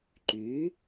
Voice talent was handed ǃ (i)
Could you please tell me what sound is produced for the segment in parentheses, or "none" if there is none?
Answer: y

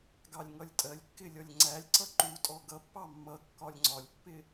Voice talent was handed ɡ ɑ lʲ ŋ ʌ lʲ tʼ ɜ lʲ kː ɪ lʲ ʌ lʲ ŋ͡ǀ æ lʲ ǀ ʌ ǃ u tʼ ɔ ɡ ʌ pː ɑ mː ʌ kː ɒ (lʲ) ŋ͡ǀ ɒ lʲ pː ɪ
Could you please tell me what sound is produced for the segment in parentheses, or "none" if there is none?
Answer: lʲ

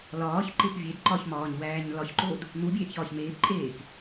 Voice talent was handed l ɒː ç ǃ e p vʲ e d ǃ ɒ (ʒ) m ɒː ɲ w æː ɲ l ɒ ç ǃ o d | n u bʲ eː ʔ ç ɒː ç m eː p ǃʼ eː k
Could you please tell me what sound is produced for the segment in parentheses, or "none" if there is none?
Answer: ç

